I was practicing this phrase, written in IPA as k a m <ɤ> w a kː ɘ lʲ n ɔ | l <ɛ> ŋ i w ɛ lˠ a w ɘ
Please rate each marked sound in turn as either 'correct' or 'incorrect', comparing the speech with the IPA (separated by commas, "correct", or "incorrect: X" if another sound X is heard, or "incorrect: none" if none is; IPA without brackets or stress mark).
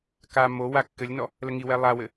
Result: incorrect: o, incorrect: ə